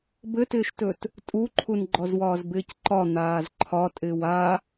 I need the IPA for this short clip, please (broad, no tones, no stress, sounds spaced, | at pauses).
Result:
b ɘ t ɪː ʃ t ɵ t | tʼ u ǃʰ u n ɡ͡ǃ ɔ z w ɒː z b ɪː c ǃ ɒ n̪ aː z ǃʰ ɒ tʼ ɪː w a